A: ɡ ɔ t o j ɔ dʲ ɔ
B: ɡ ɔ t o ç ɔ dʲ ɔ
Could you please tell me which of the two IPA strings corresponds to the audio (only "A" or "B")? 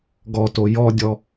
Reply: A